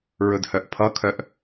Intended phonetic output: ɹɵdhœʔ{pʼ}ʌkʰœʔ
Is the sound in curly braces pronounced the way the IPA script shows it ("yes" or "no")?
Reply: no